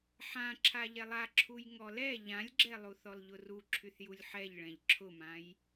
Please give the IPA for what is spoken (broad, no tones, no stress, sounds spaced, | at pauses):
ħ ã ǁʰ a ʎ ɛ lˠ a ǁʰ u j ŋ ɔ l ɛ ʎ ã lʲ ɡ͡ǁ ɛ lˠ u θ ɔ l ʎ ʊ r u ǁʰ y θ j u lʲ ħ ɛ ʎ ɭ ɛ̃ ʎ ǁʰ ʊ m ã j